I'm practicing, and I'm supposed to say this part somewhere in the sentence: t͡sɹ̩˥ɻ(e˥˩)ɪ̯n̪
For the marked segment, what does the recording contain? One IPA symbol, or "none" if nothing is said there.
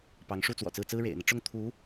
ḛ˨˩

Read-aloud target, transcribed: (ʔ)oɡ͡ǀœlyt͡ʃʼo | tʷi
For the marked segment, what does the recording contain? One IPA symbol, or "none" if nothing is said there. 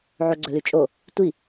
ʕ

